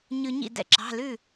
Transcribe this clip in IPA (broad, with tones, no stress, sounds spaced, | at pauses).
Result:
ɲ ʉ˧ ɲ ḭ˥˩ d ɛ̰˥˧ ǁ ɑ̤˩˧˩ l ʉ˥˩